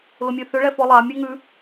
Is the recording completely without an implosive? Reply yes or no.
yes